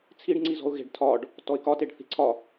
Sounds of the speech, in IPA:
t͡sʰ i ɖ ŋ͡ǀ i z ɔ̤ ʊ̯ ɣ e̤ ɖ tʰ ɒ ɖ | t ɔ ɪ̯ k ɒ t e ɖ θ i̤ ǀʰ ɒ

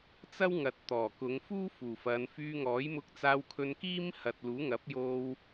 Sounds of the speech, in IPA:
t͡s ɐ˥ w ŋ ɐ˨ t̚ t̪ ɔː˨˩ k ʊ˨˧ ŋ f uː˥ f uː˨˩ f ɐ˨˧ n f yː˧ ŋ ɔː˨˥ j m ʊ˧ k̚ t͡s aː˧ w kʰ ɵ˧ n k iː˥ m h ɐ˨ t̚ l uː˨˥ ŋ ɐ˨˥ p̚ j o˧ w

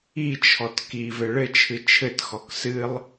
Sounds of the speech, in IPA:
i t͡ʃʰ ɔ t k i v ɘ ɭ ɘ t͡ʃʰ ɨ t͡ʃʰ ɘ t x ɔ k s ɨ lˠ

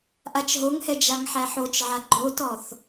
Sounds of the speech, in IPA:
ʔ a t͡ʃ ɦ o ŋ h ɛ d͡ʒ a ŋ ħ æ ħ o t͡ʃ ʕ a ɡ͡ǃ o t ɔ θ

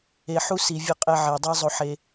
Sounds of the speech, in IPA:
e˨ ħ u˦ s i˨ vʲ ʌ˦ qʼ ɛ˦ ʕ e˨ dˤ i˦ zˤ o˦ ħ e˦

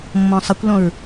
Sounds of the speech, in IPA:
mː ɔ̃ sˤ ə kʷ l ɔ̃ ɹ

